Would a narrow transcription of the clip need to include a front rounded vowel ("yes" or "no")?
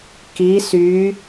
yes